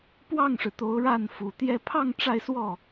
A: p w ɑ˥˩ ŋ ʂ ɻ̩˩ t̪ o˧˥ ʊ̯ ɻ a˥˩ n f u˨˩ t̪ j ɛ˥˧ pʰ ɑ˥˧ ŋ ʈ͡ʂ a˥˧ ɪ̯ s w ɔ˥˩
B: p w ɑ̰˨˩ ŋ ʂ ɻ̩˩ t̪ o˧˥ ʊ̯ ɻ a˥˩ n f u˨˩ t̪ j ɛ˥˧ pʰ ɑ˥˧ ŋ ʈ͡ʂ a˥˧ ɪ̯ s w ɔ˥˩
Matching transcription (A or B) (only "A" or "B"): A